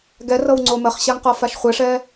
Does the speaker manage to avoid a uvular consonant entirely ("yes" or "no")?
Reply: no